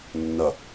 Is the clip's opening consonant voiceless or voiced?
voiced